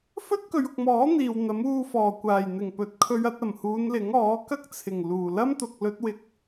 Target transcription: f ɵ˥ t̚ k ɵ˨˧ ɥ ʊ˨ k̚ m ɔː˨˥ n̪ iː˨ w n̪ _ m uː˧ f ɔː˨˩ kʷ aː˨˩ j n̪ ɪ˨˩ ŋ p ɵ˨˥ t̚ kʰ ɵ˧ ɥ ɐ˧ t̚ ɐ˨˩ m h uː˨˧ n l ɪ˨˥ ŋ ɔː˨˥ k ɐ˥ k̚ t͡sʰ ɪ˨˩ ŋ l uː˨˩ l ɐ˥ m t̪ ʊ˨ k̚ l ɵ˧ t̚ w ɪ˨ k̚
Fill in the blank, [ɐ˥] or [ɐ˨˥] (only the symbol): ɐ˨˥